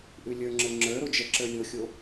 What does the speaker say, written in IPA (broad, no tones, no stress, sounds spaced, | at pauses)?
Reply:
ʔ ʉ lʲ ə˞ ŋ͡ǁ ə˞ ŋ͡ǁ ə˞ ɾ o d͡ʒ ɛ ǁ ə˞ lʲ o xʲ o